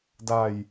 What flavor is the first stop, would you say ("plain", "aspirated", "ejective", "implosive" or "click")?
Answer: plain